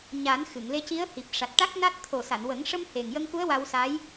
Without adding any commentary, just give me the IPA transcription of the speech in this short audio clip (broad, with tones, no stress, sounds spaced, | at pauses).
ɲ a˨˩˦ n x ɨ˨˩˨ ŋ l e˧ c i˧˥ ə̯ h i˨˩ p̚ ʂ a˨˩ t̚ ʈ a˦˥ k̚ n a˦˥ t̚ t̪ʰ o˨˩ s a˨˩˨ n w ə˨˩˦ ŋ ʂ ə˧ m h e˨˩ ŋ j ə˧ ŋ k u˧˥ ə̯ w a˧ w s a˧˥ j